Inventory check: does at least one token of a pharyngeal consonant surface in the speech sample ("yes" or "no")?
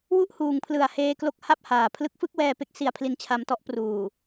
no